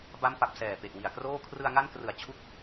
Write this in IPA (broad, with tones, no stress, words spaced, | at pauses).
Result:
ba˦˥mpa˨˩p̚ sɛː˨˩pe˨˩ʔwi˨˩a̯kroː˥˩ kʰrɯ˧a̯ŋa˦˥nkrɯ˨˩a̯ t͡ɕʰu˦˥k̚